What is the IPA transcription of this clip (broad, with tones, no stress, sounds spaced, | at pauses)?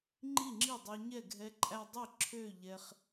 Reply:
ŋ͡ǃ i˥˩ ŋ͡ǁ i˥˩ dˤ e˧ ɲ ɛ˥˩ ɡʱ ɛ˧ ǃʼ æ˧ dˤ i˥˩ ǁʰ ø˥˩ ʎ ɛ˧ χ